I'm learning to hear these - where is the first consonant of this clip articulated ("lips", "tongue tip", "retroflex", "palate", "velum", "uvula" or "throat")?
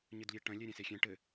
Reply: palate